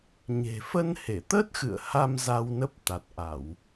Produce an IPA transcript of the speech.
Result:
ɲ e̤˨˩ f ə˧ n h e˧˩ t̪ ə˦˥ t̚ x ɨ̰˧˨ ə̯ h a˧ m z a˧ w n ə˦˥ p̚ t̪ a˨˩ t̚ ʔ a˧˩˨ w

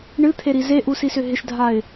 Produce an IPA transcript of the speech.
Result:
ɳ ɨ t̪ʰ e ɾ i z e ʔ u s i s ʏ ɦ ɪ ʃ dʱ a ɪ̯

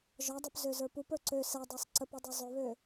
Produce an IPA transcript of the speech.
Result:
ʒ ɒ dˤ ø p z ø z ə˞ p u p ə˞ ǀ ø s ɛ dˤ ə˞ sˤ ǀ ə p u dˤ ø zˤ ø β ø

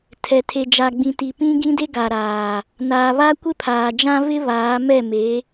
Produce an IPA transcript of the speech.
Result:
tʰ ɛ˨ tʰ e˨ d͡ʒ a˨ ɡ͡b ĩ˨ t i˨ p ĩ˦ ɡ ĩ˦ d e˦ ɡ a˨ ɾ aː˨ | n aː˨ β a˦ kʷ ɪ˦ pʰ aː˨ d͡ʒ ã˦ v ɪ˦ β aː˨˦ m ɛ˦˨ m e˨˦

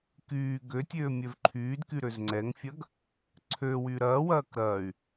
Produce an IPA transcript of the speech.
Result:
k yː ɡ ø tʲ øː mʲ œ v ǃʰ yː d k y ɾ ø z ŋ͡ǀ ɛ ŋ fʲ ɐ ɡ | ǀʰ ø w y ɾ ɐː w ɐː k ɾ ɐː y̯

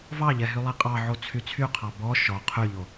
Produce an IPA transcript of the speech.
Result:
v ɑ ʎ ɛ ɦ y lˠ ɛ qʼ ɑ ʕ o t͡sʰ y t͡sʰ y qʰ ɑ b ɔ ʃ ɔ qʰ y ʎ o

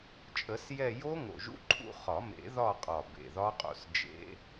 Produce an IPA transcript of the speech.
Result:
t͡ʃʼ ə˨˩˦ s j ɛ˦˨ j o˦˥ ŋ o̰˨˩ ʒ ṵ˦˥ ǃʰ ṵ˦˨ χ ɒ˨˩˦ m ḛ˨˩˦ ð ɒ˦˨ qʼ ɒ˨˩ b ḛ˨˩ ð ɒ˦˥ qʼ o̰˦˨ s d͡ʒ ḛ˦˥

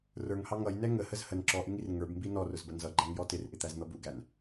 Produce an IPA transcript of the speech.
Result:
r ə˞ ŋ h ɑ ŋ ʌ j n ɛ ŋ ə h ə z h ə n ǁ ɔ ʔ ɪ ŋ i r ŋ ə˞ b m b i n ɔ r ʊ z b ə n z ʌ ɡ͡ǃ æ ŋ j ɔ t ɪ r ʔ ɪ t̪ æ z n̪ ʌ b u ɡ æ n

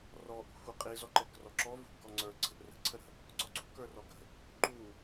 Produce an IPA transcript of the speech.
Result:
r ɔ ʔ ṳ xʷ ə qʼ i z ɔ ǃ ɛ k r ɔ ǁ ɔ v ṳ ʔ ɡ ɔ ŋ͡ǀ ə˞ ǀ ə̤ ʔ r ə̤ ǀʰ ə ɾ ə̤ | ǀ ɔ ǀ ṳ k ə˞ r ɔ ɡ ə̤ | ǃ u

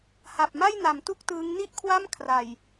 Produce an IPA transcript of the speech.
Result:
h a˨˩ p̚ m a˥˩ j n a˩˦ m t u˥˩ k̚ t ɯː˦˥ ŋ n i˥˩ ʔ kʰ w a˥˩ m kʰ r a˨˩ j

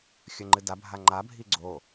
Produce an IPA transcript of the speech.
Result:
xʲ ɵ ŋ͡ǃ ɨ d a bʱ a ŋ͡ǃ a bʱ i ɡ͡ǀ o

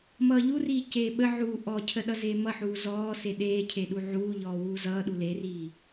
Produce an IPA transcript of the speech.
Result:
m ʌː ʎ u r iː c eː ɓ ə ʕ uː ʔ ɔ cʰ ə ɗ ʌ z eː m ʌ ħ uː z ɔː s e ɗ eː cʰ e ɗ u ʕ uː ʎ ɔː w uː z ʌː ɗ u l e r iː

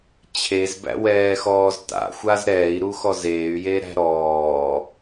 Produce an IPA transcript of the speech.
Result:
t͡ɕʰ e z b æ̰ w ɛː x ɔː z t a̰ xʷ a z ɾ ɛː i̯ ɾ u x ɔ z eː y̯ j e ɾ æ̤ ɾ ɔː

